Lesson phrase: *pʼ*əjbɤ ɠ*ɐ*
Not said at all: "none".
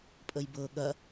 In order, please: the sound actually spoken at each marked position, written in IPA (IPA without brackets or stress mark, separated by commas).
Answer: pʼ, ɐ